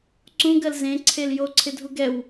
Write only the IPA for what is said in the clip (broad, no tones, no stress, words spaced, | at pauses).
ǀũɡɜl zẽǀʰel joǀʰɪdʱu ɡɛw